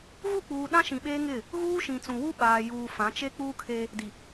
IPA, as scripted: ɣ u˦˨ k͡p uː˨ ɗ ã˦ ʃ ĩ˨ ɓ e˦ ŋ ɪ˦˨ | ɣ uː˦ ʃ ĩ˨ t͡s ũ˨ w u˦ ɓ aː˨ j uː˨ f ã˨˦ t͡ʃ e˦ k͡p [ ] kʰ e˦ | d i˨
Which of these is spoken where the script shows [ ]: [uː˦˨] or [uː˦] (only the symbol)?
uː˦